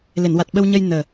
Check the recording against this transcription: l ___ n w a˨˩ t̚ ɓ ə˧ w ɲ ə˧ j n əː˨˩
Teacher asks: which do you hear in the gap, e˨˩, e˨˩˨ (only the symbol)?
e˨˩˨